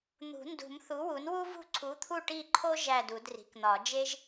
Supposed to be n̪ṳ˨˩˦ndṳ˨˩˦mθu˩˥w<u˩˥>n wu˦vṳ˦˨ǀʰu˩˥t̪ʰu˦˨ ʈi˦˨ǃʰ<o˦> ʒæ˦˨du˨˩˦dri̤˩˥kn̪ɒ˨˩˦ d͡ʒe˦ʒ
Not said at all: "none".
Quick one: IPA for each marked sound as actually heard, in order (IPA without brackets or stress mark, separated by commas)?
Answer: u˩˥, o˦